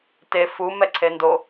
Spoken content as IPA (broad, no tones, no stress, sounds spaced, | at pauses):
t e f u m ɛ ǀʰ e n d o